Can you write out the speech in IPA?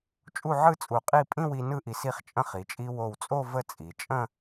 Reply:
t͡ʃʼ u˥˧ ʕ ɯ˥ t͡sʼ u˧˩ qʼ i˥˧ pʼ ĩ˥˧ w i˧ n ɯ˥ ʔ i˧ s i˥˧ χ t͡ʃʼ ə̃˥˧ χ i˩˧ t͡ʃʼ i˧ w o˧˩ w t͡sʼ o˥˧ v ə˥˧ t͡sʼ i˩˧ t͡ʃʼ ə̃˥˧

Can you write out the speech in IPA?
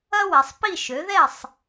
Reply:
ɐ˥ w ɛ˨˦ sˤ p i˥˨ ʃ ø˨˦ ð ɛ˥˨ sˤ

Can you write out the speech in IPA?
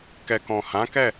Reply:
k ɛ˨ k ɔ̃˨ h ã˨˦ k ɛ˦˨

